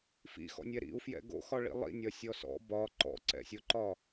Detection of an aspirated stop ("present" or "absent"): absent